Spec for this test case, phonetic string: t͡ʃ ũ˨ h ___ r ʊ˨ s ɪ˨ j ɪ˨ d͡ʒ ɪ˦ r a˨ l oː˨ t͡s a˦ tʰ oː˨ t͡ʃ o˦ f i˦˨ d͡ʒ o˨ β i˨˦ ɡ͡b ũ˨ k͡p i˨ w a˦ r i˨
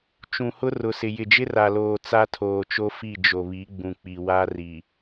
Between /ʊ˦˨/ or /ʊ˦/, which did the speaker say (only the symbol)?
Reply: ʊ˦